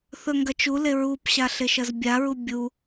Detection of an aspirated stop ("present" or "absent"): absent